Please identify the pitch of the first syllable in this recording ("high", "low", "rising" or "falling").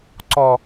low